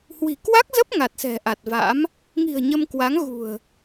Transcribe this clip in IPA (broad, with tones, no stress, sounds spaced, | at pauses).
h w i̤˨˩ k w a˦˥ k̚ z ə˦˥ p̚ ŋ a˨˩ t̚ s ɛ̤˨˩ ʔ a˨˩ t̚ v a̰˧˥ m | ŋ i̤˨˩ ə̯ ɲ ə˧ m k w a˨˦ ŋ ɣ ṳ˨˩ ə̯